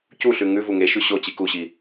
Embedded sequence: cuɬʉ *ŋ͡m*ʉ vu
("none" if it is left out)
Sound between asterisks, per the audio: ŋ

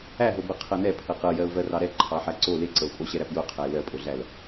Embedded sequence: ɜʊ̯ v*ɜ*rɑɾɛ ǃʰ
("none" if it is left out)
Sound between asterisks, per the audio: ɜ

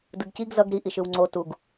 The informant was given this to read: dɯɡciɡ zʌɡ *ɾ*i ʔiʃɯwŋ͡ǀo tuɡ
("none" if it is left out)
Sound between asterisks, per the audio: ɾ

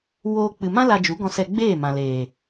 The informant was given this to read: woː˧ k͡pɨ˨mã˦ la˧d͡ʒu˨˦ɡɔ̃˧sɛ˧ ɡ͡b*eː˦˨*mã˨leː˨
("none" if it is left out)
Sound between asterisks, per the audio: eː˦˨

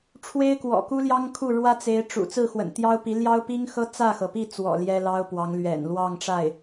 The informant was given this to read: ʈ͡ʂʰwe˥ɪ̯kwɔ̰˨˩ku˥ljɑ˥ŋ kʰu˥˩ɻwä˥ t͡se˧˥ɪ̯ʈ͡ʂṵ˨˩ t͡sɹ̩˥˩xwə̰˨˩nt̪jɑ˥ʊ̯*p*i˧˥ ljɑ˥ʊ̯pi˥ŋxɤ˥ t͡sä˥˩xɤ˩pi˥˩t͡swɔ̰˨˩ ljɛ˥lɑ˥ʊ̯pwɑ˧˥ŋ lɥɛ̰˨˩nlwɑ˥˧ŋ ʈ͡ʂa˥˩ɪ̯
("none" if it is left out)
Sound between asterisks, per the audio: p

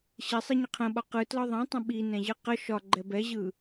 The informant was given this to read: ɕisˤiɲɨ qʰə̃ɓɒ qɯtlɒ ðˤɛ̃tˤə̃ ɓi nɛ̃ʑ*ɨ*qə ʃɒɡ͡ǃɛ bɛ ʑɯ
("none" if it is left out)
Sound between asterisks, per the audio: ɨ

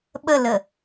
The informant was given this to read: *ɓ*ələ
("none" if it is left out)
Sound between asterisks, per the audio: ɓ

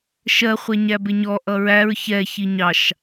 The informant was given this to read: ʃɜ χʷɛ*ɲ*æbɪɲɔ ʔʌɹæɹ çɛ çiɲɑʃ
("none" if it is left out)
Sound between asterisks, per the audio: ɲ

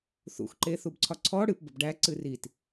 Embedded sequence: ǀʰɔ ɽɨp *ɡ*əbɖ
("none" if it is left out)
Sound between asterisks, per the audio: b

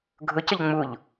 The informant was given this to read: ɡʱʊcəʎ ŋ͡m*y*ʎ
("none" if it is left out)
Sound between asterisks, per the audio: u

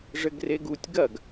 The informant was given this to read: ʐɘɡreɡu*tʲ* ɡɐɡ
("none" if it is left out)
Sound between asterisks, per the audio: tʲ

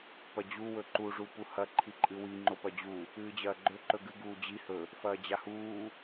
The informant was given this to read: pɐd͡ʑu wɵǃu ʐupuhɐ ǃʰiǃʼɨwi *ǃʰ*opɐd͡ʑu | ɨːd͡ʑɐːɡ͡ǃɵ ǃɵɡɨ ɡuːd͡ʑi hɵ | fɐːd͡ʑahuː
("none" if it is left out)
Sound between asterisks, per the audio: ŋ͡ǃ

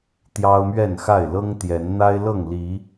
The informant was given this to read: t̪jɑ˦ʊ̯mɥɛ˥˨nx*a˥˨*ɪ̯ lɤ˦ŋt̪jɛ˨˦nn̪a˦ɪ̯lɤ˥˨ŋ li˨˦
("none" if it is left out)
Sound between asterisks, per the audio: a˥˨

